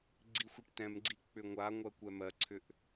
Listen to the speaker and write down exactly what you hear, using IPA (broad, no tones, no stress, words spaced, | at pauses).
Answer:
ɡ͡ǀixʷiʈtɛ̃mɡ͡ǀi k͡pʏŋʷaŋʷɜ kʷɛmɜǀʰʏʔ